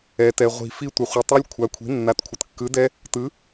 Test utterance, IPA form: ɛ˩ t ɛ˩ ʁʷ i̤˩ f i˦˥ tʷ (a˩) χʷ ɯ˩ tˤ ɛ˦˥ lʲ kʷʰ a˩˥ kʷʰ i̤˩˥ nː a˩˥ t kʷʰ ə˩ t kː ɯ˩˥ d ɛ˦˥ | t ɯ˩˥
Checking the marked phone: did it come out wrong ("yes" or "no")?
yes